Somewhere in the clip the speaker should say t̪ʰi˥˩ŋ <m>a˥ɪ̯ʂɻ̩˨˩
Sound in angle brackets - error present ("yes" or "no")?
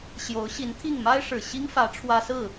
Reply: no